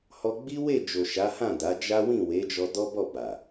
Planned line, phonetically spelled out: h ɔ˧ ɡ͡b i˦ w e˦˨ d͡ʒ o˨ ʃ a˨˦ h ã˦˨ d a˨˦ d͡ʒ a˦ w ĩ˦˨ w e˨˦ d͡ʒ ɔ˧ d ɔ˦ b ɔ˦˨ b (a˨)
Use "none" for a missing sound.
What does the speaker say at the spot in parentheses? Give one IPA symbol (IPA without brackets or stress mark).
a˨